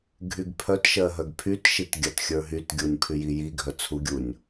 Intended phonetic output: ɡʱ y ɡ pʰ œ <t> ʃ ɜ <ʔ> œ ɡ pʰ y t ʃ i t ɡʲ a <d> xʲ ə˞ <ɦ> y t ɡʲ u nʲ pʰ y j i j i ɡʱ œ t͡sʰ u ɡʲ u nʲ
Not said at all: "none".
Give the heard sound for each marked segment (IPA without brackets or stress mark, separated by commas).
t, ɦ, t, ɦ